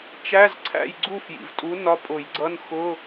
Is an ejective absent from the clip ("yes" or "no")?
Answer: no